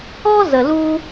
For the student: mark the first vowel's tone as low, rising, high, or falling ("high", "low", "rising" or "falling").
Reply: high